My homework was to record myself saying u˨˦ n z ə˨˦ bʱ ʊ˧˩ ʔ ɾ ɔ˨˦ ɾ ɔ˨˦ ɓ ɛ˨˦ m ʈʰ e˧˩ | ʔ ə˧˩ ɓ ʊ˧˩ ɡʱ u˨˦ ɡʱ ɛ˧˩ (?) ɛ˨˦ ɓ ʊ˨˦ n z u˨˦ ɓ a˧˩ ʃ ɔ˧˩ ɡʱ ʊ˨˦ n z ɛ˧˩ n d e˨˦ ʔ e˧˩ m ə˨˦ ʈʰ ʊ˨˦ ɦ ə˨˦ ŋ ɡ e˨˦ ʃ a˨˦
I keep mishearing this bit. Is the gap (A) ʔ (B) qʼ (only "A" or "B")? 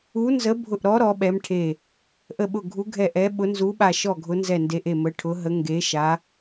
A